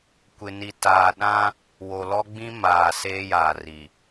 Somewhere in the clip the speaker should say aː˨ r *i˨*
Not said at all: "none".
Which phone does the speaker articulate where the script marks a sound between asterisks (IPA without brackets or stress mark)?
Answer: i˨